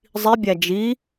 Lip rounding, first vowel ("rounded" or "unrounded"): unrounded